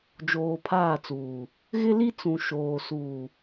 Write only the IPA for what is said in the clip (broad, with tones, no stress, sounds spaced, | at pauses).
d͡ʒ oː˨ pʰ aː˦˨ t͡s uː˨ | ɣ ɪ˦ l i˦ t͡s ũ˨ ʃ oː˨ s uː˨